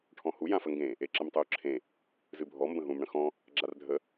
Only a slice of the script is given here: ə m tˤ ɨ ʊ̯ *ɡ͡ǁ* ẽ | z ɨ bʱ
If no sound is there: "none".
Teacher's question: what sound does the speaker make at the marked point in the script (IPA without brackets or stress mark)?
ǁʰ